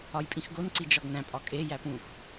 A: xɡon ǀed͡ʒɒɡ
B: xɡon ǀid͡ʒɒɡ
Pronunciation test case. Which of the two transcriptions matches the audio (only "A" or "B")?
B